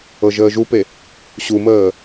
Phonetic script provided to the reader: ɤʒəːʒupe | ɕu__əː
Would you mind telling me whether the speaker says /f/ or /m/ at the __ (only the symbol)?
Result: m